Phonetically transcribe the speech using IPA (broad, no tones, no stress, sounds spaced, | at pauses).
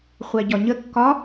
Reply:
χʷ æ ɟ ɒ ɲ ə kː ɒ